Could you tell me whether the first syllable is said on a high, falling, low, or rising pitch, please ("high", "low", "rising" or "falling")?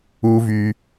high